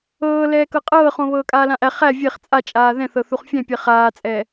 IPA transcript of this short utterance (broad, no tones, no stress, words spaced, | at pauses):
ɤːlɛː kɤqʼɤːχõ βɤːkʼaːlãʔæ χæ vʲeχ t͡sʼat͡ʃʼaː ðɛ̃θɤθuχ fʲɛ̃pʲɛ χaːt͡sʼɛː